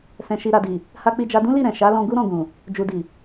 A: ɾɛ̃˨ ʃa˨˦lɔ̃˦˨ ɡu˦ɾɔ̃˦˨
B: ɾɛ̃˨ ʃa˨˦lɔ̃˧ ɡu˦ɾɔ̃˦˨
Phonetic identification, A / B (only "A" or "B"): B